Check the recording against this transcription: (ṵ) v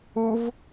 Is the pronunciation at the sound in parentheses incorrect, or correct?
incorrect